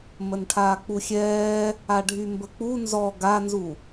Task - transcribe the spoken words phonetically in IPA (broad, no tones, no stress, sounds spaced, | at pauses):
m ə n ʈʰ aː k͡p u xʲ ɛː | a ɖʱ y m b ə k͡p u n z ɔ ɡ a n z u